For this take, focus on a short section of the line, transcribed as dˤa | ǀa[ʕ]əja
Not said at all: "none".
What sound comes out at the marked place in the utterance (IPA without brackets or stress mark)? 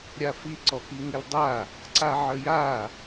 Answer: ʕ